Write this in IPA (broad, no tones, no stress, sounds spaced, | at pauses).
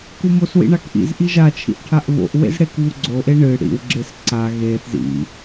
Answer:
k u m o s w ḭ ɳ a k ʔ ḭ z ʔ i ʒ a t͡ʃʰ ḭ ʔ ʈʰ a ʔ β o̰ ʔ w ḛ z ɽ e k β u ɡ͡ǀ o ʔ e ɳ ɨ ɽ ḭ w ɡ͡ǁ e s ǀ a ɣ e θ z ḭ